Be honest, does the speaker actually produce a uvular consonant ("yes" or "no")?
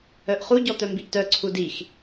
yes